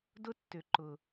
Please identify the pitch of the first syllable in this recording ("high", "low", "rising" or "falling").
high